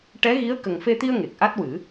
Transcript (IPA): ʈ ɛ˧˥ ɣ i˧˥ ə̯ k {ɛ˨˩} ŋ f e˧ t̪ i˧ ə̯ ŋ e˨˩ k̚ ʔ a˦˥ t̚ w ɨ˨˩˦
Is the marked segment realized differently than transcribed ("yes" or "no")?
yes